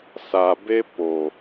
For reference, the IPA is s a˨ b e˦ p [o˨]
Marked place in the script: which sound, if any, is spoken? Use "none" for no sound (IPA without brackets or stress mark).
o˨